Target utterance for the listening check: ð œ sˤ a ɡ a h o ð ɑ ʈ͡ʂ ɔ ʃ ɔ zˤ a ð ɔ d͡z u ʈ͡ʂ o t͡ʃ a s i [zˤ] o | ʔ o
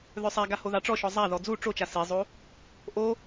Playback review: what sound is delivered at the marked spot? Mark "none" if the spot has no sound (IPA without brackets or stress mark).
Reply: zˤ